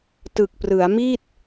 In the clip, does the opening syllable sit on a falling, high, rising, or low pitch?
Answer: low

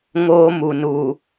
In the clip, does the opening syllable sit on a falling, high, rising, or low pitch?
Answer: high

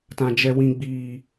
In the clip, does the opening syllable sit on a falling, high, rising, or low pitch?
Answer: low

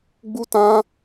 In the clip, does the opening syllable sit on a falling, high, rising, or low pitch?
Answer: high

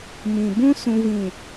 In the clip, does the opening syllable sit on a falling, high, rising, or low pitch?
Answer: low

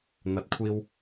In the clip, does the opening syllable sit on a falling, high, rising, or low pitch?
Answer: rising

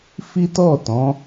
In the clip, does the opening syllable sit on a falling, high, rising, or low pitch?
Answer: high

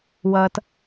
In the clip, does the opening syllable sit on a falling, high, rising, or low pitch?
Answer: low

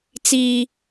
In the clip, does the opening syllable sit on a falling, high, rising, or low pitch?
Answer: high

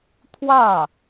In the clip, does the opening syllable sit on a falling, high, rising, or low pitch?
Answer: falling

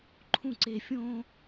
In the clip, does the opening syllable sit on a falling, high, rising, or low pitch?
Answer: falling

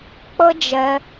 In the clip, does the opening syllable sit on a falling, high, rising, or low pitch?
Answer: high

